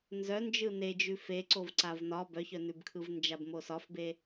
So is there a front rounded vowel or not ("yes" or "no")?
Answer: yes